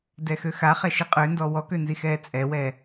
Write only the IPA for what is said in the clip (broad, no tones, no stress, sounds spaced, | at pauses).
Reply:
d ɛ x ø x a χ ɛ ʃ i qʼ ø n d ɔ w ɔ k ø n z i x ɛː t͡sʼ ɛ w ɛ